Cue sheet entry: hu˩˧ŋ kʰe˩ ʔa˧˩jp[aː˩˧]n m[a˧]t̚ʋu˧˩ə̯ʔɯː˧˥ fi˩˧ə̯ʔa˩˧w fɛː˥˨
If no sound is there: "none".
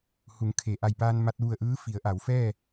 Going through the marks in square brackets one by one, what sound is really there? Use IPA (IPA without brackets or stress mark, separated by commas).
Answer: aː˧, a˧